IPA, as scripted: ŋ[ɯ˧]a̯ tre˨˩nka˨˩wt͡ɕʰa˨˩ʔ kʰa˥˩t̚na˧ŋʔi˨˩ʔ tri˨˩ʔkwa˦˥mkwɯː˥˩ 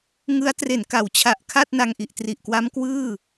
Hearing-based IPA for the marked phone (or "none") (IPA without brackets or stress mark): ɯ˦˥